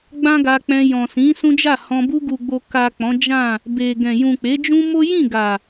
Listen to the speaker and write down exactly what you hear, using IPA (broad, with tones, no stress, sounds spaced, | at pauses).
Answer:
ɡ͡b ã˦ ɡ a˧ k͡p ɛ̃˧ j ɔ̃˨ s ĩ˨˦ s ũ˦ d͡ʒ a˦˨ h ɔ̃˧ b u˧ ɡ u˨ ɡ͡b o˨ k a˨ k͡p ɔ̃˨˦ d͡ʒ ã˦˨ | b e˨ ɡ ɛ̃˨ j ũ˨ k͡p e˨˦ d͡ʒ ũ˦ m o˦ j ĩ˦˨ ɡ a˨